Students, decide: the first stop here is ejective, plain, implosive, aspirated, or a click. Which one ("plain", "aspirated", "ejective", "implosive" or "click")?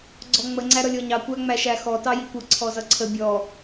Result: click